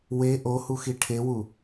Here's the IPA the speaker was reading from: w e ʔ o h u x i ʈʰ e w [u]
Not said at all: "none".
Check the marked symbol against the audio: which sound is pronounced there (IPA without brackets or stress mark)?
u